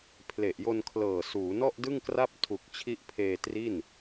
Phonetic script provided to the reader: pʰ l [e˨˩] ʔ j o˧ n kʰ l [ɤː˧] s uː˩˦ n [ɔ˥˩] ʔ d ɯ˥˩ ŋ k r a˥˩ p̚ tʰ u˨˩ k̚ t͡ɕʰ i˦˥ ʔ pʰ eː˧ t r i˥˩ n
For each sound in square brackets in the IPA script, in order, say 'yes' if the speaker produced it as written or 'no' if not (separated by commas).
yes, no, yes